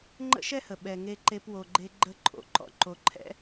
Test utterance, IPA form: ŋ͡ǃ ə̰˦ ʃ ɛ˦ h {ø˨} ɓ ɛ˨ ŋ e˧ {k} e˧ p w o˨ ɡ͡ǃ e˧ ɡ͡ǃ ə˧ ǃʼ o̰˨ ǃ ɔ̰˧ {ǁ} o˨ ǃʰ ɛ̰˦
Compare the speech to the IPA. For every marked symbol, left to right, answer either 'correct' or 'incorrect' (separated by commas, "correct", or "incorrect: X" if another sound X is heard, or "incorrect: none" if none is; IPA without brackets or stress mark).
incorrect: ə˨, incorrect: ǃ, incorrect: ǃ